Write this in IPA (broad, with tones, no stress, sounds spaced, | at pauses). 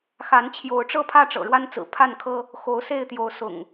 x a˨˦ n t͡ɕʰ j o˨˦ ʊ̯ ʈ͡ʂ ɤ˦ pʰ ä˥˨ ʈ͡ʂ ɤ̰˨˩ ɻ w a˦ n t͡s ɹ̩˨˩ pʰ a˥˨ n kʰ ɤ˦ | x o˨˦ ʊ̯ s e˥˨ ɪ̯ t̪ j o˨˦ ʊ̯ s ʊ̰˨˩ ŋ